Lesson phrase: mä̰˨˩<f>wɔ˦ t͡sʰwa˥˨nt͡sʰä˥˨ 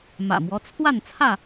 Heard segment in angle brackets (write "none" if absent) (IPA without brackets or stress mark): m